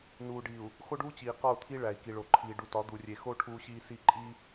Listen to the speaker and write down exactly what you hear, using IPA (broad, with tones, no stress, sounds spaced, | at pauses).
n uː˨ ɖ i˨ u̯ | x o˦ ɖ uː˦ t͡ɕ iː˨ q ɒ˦˨ u̯ t̪ʰ i˦ ɭ æ˨ i̯ k i˨ ɭ o˨ ǃʰ iː˨ ɖ u˨ t ɒ˨˦ d̪ u˨ rʲ e˨ x o˦ ʈʰ uː˦ ɕ iː˦ s i˦˨ ǃʼ i˦